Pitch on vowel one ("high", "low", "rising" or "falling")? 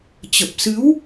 low